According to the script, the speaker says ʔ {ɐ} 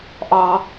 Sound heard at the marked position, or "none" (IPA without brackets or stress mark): ɑ